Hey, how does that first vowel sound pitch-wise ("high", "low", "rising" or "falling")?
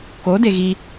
rising